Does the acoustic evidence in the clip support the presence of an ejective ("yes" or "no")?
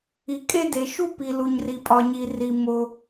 yes